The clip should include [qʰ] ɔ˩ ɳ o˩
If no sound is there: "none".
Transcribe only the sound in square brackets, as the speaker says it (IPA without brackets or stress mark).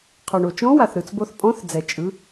qʰ